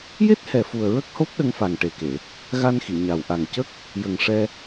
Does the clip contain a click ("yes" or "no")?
no